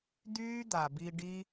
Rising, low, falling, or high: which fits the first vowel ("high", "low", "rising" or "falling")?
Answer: high